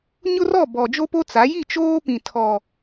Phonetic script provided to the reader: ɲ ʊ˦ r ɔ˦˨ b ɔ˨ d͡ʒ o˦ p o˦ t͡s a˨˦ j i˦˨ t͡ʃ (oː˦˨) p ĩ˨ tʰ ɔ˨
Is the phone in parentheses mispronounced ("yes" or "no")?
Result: yes